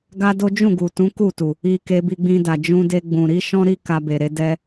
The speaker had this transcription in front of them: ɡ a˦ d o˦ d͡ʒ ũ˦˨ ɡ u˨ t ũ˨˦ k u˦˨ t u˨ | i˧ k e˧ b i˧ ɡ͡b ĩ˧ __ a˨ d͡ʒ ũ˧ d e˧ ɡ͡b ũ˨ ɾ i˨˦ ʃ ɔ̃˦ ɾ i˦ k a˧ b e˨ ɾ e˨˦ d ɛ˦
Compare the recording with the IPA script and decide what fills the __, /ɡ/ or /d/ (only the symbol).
d